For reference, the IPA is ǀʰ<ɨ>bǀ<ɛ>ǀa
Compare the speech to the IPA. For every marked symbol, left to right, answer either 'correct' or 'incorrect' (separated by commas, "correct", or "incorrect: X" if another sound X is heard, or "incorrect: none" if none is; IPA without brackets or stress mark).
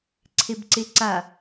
incorrect: e, incorrect: e